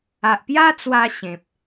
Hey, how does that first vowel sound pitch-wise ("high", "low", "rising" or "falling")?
low